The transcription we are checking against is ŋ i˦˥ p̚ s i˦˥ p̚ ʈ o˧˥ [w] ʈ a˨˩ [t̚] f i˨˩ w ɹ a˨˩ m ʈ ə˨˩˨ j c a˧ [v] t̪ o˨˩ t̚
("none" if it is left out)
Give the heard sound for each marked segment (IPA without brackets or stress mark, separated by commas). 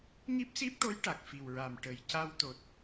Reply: j, k̚, w